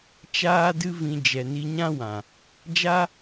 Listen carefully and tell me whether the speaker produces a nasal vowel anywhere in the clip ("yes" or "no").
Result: yes